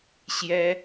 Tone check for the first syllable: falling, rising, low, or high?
high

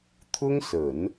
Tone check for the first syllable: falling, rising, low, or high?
high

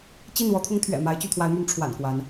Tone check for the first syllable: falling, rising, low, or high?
falling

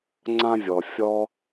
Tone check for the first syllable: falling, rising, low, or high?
high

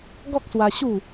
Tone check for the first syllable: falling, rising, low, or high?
high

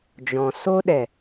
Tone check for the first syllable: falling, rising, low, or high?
low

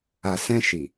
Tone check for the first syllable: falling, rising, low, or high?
low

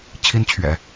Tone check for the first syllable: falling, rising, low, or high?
high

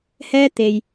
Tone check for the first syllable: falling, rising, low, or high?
high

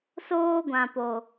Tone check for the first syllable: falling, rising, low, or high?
high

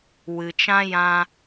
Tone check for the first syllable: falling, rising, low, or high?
low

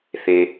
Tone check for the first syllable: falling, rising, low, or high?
low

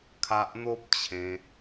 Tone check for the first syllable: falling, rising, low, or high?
high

